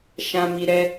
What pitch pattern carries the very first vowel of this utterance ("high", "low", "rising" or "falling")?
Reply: low